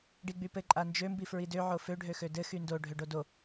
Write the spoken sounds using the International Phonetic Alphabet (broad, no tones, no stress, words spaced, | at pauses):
ɖiɡ͡bypɘ ǃʼand͡ʒø mbifɹidø ʕofø ɖʱøxødɘ xyndo ɖʱøɖodo